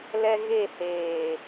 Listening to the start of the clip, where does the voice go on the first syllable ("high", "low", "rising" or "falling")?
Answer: high